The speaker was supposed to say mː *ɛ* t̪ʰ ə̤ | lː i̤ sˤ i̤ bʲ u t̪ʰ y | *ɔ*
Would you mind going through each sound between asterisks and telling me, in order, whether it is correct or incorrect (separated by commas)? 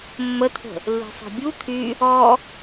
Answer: incorrect, correct